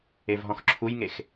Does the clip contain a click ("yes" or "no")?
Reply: yes